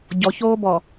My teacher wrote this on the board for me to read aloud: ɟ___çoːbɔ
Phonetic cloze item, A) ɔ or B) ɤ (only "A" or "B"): A